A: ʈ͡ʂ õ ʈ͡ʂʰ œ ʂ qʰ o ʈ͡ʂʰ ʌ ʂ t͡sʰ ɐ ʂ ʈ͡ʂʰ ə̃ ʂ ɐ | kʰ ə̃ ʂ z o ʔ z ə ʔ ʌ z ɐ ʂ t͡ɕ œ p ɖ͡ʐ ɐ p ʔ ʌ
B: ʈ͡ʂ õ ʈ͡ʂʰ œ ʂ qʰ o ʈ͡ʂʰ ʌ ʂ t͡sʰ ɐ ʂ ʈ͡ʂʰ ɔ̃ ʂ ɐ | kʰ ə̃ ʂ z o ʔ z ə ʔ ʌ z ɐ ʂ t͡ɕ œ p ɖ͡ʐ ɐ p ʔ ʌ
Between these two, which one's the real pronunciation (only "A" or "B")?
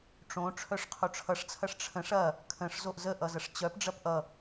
A